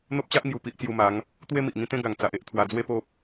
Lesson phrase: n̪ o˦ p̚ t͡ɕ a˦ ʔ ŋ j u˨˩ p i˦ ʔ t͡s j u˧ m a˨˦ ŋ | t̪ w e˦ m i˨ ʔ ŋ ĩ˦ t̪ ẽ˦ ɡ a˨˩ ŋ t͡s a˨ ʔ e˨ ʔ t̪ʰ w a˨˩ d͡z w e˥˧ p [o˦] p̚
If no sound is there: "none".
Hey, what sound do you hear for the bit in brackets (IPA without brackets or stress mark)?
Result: o˦